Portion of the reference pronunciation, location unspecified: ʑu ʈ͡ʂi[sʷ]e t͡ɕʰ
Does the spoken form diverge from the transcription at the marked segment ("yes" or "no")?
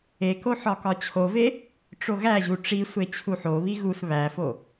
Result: no